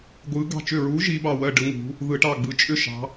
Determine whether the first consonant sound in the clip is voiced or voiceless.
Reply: voiced